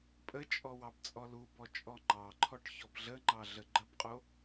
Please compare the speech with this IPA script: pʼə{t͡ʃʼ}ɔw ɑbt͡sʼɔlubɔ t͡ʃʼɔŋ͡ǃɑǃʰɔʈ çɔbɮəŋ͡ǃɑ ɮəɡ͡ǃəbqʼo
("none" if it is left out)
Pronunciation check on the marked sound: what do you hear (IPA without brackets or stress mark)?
t͡ʃʼ